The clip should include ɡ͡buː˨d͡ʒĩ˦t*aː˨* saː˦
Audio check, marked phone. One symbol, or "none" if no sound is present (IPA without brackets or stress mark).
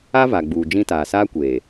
aː˨